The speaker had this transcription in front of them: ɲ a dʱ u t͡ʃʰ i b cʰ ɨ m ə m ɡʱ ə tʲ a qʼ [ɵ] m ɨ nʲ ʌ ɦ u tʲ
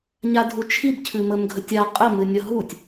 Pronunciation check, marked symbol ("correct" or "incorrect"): incorrect